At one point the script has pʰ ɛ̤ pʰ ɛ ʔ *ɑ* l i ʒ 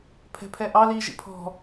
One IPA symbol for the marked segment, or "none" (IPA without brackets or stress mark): ɑ